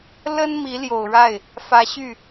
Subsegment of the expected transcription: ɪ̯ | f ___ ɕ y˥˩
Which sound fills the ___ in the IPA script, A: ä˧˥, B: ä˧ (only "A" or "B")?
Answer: A